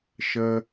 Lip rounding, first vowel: unrounded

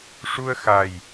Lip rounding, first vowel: rounded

